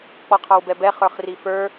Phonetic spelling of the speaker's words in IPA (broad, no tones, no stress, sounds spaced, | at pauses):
k͡p ɔ qʰ ɑ w b ɛ b ɛ χ ə˞ χ r i f ə˞